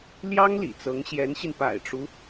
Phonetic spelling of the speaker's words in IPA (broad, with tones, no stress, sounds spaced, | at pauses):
l j ɑ˥ ŋ l ḭ˨˩ t͡s ɤ˧˥ ŋ ɕ j ɛ˧˥ n ɕ i˧ n p a̰˨˩ ɪ̯ ʈ͡ʂ u˦